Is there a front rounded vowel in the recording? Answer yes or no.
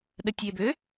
yes